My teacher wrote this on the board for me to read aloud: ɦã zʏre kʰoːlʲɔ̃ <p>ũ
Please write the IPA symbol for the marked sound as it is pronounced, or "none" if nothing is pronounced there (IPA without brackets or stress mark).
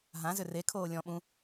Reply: ɓ